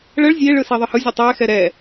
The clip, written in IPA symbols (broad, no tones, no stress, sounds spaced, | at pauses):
ɭ ə ɭ zʲ e ɭ ɯ s i ðˤ ɯ h ɯ zʲ ɯ tˤ ɛ x ɛ ɾ ɛ